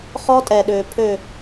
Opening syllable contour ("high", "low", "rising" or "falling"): high